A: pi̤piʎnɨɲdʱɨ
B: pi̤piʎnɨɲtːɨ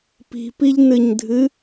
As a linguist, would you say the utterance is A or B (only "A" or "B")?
A